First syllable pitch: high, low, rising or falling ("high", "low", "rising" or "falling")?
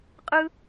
high